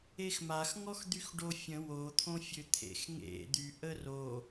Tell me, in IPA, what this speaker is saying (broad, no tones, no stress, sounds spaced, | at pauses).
e x m a x ŋ ɔ x d̪ y x ɖ o fʲ ə̃ w o t̪ʰ õ fʲ ø t̪ʰ ḛ x ŋ ḛ d̪ y ʔ ə r o